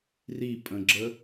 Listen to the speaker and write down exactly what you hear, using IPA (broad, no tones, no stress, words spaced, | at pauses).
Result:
ripʼə̃ɡ͡ǁə